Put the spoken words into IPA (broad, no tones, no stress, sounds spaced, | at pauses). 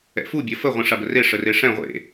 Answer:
ɛ̰ f u bʲ ɐ f ə ʁʷ ĩ ʂ a b ə r e ʂ ə r e ʂ ɛ̃ ʁʷ ḛ